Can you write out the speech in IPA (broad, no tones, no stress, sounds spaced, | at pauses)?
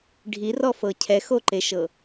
ɖʱ i r ɔ f ɤ cʰ ɛ x o ǃ e ʃ ɤ